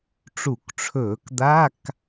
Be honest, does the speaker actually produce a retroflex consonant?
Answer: yes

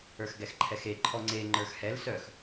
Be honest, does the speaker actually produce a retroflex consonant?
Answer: no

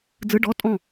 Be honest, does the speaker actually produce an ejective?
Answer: yes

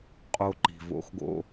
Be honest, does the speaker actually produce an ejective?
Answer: yes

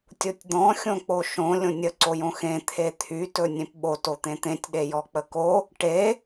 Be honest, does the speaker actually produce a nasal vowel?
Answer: yes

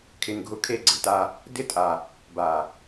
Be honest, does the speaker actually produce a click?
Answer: yes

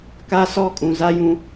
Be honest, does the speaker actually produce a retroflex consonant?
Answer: no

